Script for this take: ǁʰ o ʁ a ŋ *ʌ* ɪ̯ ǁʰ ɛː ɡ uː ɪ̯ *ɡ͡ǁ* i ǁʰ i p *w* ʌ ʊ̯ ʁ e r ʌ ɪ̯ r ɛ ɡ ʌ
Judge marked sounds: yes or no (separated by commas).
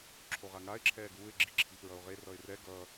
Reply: no, yes, no